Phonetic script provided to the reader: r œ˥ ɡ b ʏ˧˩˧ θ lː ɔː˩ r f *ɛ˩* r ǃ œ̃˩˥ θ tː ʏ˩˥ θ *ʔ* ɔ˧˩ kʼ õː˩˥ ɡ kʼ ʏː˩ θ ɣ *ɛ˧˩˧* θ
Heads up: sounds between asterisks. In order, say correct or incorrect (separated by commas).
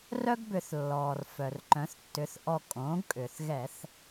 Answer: incorrect, correct, correct